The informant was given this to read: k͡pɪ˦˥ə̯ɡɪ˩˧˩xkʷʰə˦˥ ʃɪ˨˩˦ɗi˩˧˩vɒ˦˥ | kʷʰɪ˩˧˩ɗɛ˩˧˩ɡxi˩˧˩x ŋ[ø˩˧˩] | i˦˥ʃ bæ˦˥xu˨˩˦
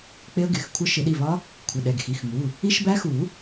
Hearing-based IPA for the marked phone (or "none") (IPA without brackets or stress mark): u˩˧˩